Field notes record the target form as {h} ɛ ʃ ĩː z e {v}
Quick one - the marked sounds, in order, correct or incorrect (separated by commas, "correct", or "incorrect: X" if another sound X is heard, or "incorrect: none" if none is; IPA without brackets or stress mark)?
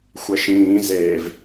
incorrect: xʷ, correct